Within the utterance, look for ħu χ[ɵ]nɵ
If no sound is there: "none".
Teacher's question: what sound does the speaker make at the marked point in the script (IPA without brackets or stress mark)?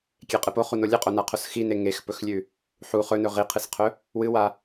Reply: ɵ